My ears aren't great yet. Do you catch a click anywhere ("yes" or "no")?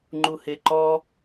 yes